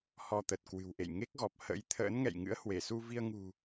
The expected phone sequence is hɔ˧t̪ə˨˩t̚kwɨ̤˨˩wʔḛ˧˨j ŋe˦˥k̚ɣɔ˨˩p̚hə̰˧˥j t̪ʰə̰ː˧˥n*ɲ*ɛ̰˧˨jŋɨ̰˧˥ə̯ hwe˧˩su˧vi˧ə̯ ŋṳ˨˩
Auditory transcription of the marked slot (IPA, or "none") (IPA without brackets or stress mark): ŋ